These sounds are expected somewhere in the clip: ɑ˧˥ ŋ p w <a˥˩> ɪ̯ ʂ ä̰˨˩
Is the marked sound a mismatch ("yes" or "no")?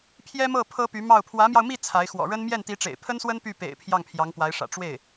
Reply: yes